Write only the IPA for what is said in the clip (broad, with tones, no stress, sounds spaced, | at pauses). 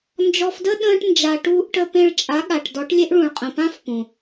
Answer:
n d͡ʒ ɔ˧ f d ə˦ ɗ ə̃ː˧ ʈ n d͡ʒ a˧ ʈ uː˧ ʔ ʈ ə˧ p ẽ˧ ɭ t͡ʃʼ a˨˦ ɠ a˨ ʈ d ɔ˨˦ ʈ lʲ e˦ ʔ ɭ ũ˨ ɭ qʼ ə̃˨ p ã˦ f p ũ˨